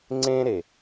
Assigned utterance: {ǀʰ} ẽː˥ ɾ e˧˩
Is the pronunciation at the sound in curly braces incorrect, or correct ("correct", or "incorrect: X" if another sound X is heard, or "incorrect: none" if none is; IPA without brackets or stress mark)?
incorrect: ŋ͡ǀ